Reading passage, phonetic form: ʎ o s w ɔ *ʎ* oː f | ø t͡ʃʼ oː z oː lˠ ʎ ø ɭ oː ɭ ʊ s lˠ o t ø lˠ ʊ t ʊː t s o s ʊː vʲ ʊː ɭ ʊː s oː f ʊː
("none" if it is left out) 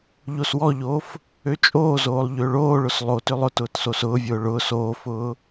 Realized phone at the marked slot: ʎ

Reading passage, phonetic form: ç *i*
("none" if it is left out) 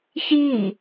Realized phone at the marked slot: i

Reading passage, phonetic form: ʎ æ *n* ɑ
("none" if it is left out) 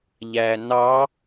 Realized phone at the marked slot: n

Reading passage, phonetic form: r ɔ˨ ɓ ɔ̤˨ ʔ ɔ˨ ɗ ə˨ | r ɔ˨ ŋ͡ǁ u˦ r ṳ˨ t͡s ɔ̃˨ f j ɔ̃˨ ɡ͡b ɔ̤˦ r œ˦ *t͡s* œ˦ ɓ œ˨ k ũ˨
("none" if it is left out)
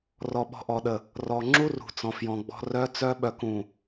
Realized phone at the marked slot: t͡s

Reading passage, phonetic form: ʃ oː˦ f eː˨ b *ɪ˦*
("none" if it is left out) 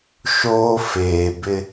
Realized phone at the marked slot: ɪ˦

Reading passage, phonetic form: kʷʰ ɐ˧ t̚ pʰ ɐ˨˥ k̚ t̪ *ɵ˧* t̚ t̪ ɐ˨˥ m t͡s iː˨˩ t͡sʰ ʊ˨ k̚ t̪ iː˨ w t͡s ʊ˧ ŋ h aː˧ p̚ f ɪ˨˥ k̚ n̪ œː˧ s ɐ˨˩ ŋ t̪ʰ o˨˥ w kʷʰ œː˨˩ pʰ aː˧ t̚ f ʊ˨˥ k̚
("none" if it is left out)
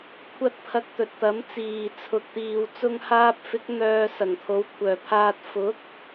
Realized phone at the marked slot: ɵ˨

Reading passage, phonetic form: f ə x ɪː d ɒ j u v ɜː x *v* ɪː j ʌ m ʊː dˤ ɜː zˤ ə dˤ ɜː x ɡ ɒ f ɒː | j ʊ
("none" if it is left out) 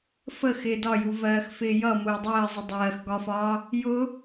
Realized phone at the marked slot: f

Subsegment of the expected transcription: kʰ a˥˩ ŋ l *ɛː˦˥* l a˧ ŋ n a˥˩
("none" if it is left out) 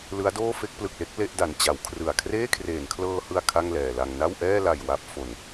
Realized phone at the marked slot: ɛː˨˩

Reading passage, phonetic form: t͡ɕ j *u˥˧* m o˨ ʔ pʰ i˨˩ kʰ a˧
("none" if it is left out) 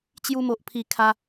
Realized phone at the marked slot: u˧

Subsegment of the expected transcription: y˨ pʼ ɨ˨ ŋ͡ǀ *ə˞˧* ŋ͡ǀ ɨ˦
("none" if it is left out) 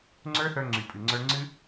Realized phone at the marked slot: ə˞˧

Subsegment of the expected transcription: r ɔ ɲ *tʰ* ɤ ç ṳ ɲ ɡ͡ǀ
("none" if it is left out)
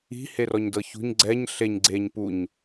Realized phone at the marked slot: d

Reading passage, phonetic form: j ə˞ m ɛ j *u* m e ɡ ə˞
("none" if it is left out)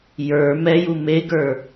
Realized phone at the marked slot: u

